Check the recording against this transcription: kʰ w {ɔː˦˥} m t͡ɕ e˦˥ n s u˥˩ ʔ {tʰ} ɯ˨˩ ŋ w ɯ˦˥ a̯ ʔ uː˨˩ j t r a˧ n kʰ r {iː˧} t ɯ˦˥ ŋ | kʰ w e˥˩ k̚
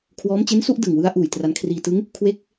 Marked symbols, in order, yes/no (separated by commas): yes, no, yes